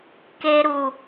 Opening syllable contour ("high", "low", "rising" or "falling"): low